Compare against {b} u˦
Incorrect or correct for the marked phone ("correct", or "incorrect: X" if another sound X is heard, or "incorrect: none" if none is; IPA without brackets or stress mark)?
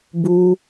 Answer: correct